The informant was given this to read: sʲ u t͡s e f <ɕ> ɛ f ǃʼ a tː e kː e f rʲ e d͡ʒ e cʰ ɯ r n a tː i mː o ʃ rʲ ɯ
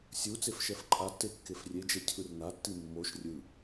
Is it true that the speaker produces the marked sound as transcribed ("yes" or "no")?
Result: no